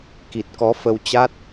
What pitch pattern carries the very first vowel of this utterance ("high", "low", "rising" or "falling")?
low